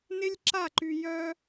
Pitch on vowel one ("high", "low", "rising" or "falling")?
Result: high